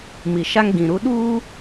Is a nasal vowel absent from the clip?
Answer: no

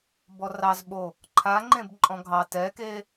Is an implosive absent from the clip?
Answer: no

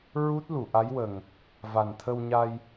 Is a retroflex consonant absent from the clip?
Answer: yes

